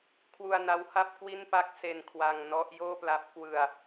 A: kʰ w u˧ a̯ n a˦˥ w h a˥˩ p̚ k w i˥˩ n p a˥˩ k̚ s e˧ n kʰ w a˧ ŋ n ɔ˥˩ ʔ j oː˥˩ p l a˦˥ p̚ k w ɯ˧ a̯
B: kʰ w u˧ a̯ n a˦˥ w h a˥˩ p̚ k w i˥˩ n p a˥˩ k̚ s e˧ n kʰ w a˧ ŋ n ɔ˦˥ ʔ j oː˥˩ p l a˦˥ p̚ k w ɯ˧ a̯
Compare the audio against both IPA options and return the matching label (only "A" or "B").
B